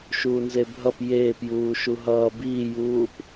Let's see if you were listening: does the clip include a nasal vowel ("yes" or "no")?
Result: no